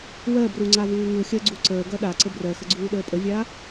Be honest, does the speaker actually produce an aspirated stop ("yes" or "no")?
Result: no